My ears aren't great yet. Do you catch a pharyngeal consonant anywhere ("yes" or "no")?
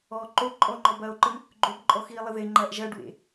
no